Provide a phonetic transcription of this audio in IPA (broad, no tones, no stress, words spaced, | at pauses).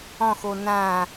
ɔ̃xo nã